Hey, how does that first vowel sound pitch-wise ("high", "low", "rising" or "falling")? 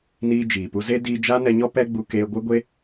high